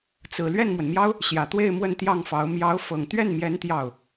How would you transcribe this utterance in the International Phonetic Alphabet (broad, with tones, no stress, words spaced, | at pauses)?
t͡sɹ̩˨˩ lɥɛ˥˩nmwə˩nmjɑ˥ʊ̯ | ɕjä˨˩t̪we˥˧ɪ̯ mwə˥˧nt̪jɑ˥˩ŋfɑ˧˥ʊ̯ mjɑ˧˥ʊ̯fɤ˨˩ŋ t̪ɥɛ˥˩nmjɛ˧˥n t̪jɑ˥˩ʊ̯